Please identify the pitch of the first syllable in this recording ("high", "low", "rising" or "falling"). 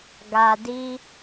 low